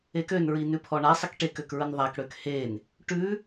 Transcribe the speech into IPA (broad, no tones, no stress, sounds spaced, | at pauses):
e k ø n ɹ i n ʉ pʰ ɔ ɳ a sˤ ə k ʈ e k ø k ɹ ə n ðˤ a k ɽ ø k h e n | ʈ ʉ